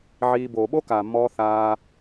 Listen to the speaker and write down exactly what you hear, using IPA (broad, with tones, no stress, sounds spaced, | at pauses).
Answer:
ʕ iː˧ b oː˨ ɓ o˦ k aː˨ mː ɔː˧ θ aː˧